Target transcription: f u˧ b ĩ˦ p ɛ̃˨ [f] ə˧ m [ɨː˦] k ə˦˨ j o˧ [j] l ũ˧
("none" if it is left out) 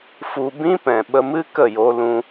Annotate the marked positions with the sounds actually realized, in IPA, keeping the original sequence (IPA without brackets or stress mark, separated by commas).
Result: ɓ, ɨ˦, none